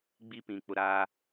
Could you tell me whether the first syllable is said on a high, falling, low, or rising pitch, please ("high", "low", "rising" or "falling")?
high